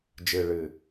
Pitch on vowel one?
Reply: low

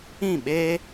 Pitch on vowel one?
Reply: falling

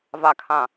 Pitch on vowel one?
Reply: low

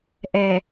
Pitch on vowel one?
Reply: low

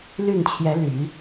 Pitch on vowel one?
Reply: falling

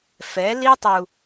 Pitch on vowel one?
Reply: rising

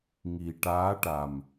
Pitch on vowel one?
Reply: low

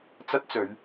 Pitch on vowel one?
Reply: high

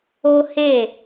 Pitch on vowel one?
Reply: high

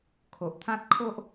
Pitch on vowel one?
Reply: low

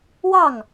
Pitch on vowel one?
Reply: falling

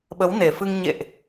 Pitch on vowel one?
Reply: rising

